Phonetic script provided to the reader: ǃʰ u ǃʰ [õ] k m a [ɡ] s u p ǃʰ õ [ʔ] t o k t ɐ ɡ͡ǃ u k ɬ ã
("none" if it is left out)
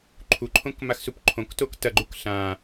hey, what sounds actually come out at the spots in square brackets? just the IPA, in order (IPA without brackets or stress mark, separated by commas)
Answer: õ, x, k